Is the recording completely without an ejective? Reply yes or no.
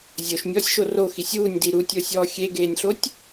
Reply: yes